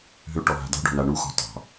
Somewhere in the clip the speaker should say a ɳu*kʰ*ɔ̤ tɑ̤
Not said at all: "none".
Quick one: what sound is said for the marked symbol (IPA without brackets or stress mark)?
x